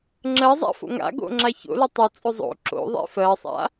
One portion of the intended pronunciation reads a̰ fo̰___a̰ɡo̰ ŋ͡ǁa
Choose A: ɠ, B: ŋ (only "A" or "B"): B